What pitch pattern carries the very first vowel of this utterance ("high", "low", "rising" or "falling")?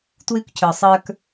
high